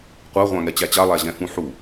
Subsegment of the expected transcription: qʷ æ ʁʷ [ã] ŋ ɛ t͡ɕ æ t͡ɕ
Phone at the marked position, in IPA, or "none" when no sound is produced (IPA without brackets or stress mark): ã